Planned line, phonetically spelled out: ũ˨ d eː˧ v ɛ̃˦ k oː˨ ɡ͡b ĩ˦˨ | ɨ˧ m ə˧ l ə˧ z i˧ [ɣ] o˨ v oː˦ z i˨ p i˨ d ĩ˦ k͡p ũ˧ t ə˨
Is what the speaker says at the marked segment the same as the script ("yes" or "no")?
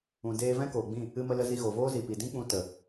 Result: yes